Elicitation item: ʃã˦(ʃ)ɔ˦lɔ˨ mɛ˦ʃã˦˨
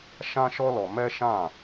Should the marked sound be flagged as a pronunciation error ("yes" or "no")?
no